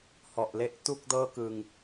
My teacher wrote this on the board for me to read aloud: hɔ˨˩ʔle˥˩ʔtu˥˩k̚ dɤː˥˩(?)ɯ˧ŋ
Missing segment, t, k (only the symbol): k